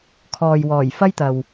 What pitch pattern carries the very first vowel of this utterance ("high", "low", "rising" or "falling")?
low